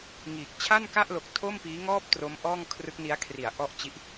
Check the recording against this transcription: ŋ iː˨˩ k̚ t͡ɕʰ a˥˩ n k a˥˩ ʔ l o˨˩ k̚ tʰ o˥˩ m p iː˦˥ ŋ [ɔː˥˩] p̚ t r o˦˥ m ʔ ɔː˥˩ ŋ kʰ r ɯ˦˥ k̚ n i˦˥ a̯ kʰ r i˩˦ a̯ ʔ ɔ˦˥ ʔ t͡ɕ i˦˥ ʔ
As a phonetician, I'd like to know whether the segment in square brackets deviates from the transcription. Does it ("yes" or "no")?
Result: no